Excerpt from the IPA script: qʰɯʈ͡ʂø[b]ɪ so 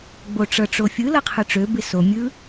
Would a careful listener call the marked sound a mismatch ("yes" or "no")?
no